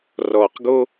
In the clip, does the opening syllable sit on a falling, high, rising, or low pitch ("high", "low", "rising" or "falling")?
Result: low